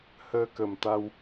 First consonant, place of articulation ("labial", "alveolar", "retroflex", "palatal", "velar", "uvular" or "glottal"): glottal